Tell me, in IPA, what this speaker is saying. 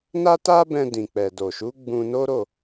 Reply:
n a˦ t a˦ b ɛ̃˧ d ĩ˨ k͡p ɛ˨ d o˨ ʃ u˨˦ ɡ͡b ũ˧ n o˦ ɾ o˦˨

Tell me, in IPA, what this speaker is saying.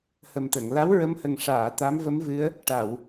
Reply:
h ə˨˩ m t̪ ə˨˩˨ ŋ l a˧˥ w ɹ ə˧˥ m h ə˨˩ ŋ ʂ aː˨˩˨ t̪ a˧˥ m v ə˧˥ m v ɨ˧˥ ə̯ | ʈ a˨˩˨ w

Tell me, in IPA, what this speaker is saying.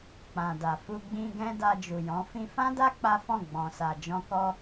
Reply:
k͡p ã˨ d a˨ f u˧ ɡ͡b ĩ˧ ɡ ɛ̃˦ d a˧ d͡ʒ u˨ j ɔ̃˨˦ f ĩ˧ f ã˦ d a˦ k͡p a˦ f ɔ̃˦˨ ɡ͡b ɔ̃˨ s a˨ d͡ʒ ɔ̃˧ k ɔ˧

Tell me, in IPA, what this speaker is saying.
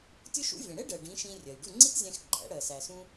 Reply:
tʲ ʊ˥ ʃ ṵ˥ vʲ ɛ̃˩ ɽ ɛ˥ ɖ ɜ˩ ɖ ĩ˩˥ ʃ ĩ˧ rʲ ɜ˩ j ɖ u˥˩ ŋ͡ǀ i˥ t zʲ æ̃˧ x ɡ͡ǃ æ̰˩˥ ɽ ɜ˩ s æ˩ s ũ˧

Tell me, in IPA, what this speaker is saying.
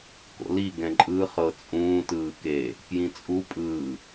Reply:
k o̰ l i ɡ ɛ̃ ǃʼ ɯ χ ɤ t͡sʼ ũː t ɯː k e | k j ĩ t͡sʼ u pʼ ɯː

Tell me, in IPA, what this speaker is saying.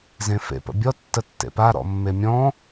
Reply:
z ẽ f ḛ p ə̰ bʲ ɔ tː ə tː ḛ p a ɾ ɔ̰ mː e mʲ ɔ̃

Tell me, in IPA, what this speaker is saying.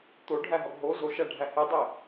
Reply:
t̪ o ɖʱ æ ɦ ɒ ɡ ɦ o z o ʃ æ ɖʱ æ h e dˤ e

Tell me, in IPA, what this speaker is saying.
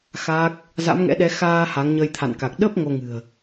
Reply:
x aː˦˥ k̚ | z a̰˧˥ m ŋ ɛ̰˧˥ ɗ ɛ˨˦ x aː˧ h a˨˦ ŋ ɲ ə˧ j t̪ʰ a̰˧˨ n k a˨˩ k̚ ɗ ə˦˥ p̚ ŋ o˧ ŋ ɨ̤˨˩ ə̯

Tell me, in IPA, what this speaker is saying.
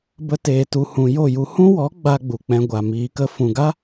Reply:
b ə˧ t eː˨ t u˨ h ũ˨ j o˦˨ j u˧ h ũ˦ w ɔ˨˦ ɡ͡b a˧ ɡ͡b u˨ k͡p ɛ̃˧ ɡʷ a˨ m iː˨ k ə˧ f ũ˨ ɡ a˦

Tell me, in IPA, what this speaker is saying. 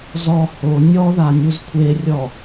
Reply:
z ɔ h o nʲ ɔ ð a nʲ u z kʷʰ e rʲ ɔ

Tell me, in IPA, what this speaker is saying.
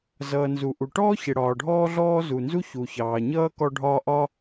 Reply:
z ʌː˩ n z u˩ ʔ u˩ ʈ ɔː˥ ç ɪ˩ ɽ ɒː˩ ɖʱ ɔː˥ ɮ ɔː˥ z u˩ n z u˥ ç u˩ ç ɑː˩ ɲ ʌː˥ k ɔ˥ ɖʱ ɒː˥ ʔ ɒ˥

